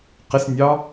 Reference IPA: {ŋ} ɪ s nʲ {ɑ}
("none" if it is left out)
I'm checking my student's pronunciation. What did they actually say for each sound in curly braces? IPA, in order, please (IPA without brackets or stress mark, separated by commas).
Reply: q, ɑ